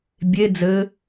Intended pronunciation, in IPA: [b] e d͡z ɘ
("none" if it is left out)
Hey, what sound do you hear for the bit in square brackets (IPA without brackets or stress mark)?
bʲ